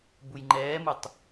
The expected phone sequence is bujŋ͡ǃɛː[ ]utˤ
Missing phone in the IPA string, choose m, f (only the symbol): m